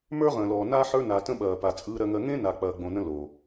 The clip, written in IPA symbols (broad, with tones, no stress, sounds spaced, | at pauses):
m ə˞˦ ʁ ə̃ː˨ l ɔː˨ n a˦ ħ ə˞˦ n a˨ t ə̃˦ ɓ ɐː˨ p a˨ t͡sʼ ɯː˦ ɾ ɜ˦ ŋ ɜ˦ ŋ ẽ˦ n a˨ k͡p ɐː˨ ɡ͡b õ˨ n ə̃˦ l o˨